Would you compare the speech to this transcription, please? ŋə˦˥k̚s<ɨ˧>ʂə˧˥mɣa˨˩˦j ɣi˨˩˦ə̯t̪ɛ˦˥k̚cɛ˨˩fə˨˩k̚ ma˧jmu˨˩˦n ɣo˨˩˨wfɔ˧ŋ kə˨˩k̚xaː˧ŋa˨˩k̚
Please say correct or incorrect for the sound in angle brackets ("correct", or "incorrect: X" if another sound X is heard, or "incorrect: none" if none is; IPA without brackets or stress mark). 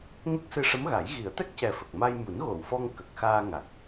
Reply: correct